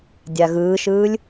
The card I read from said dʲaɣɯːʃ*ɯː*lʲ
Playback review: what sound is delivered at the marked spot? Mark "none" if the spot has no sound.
ɯː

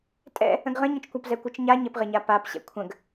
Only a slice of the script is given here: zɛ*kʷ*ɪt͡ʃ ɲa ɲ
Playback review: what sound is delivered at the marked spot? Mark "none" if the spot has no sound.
kʷ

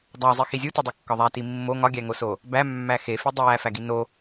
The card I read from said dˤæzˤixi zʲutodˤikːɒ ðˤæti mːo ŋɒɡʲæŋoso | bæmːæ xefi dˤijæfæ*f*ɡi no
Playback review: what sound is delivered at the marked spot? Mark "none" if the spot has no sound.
none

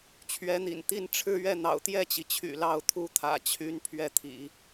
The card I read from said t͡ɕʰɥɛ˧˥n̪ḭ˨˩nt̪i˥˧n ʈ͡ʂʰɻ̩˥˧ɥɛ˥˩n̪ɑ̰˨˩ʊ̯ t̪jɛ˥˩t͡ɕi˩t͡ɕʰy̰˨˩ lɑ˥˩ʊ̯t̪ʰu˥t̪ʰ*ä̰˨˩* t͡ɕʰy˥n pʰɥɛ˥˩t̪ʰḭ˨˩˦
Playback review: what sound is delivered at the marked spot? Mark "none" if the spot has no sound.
ä̰˨˩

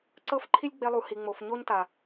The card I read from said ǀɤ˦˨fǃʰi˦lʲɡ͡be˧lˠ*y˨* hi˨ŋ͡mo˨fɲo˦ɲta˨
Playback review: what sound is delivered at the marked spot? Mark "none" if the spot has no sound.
u˨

